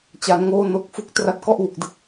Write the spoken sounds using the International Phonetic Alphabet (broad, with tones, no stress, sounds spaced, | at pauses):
t͡ɕ a˩˦ n ŋ oː˧ n o˨˩ k̚ f u˨˩ k̚ t r a˦˥ t̚ k ɔ˥˩ ʔ w u˨˩ k̚ d ɯ˦˥ k̚